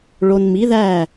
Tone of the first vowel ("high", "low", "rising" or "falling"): low